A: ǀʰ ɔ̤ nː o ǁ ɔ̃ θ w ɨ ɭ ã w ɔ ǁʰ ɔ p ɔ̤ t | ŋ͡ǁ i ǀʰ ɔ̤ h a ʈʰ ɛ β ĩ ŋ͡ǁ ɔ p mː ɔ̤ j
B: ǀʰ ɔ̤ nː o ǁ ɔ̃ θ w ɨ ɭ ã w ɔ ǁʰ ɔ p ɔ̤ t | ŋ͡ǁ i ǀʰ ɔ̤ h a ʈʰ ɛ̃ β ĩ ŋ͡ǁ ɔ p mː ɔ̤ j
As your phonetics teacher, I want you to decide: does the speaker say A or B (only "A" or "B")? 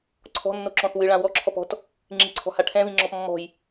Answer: B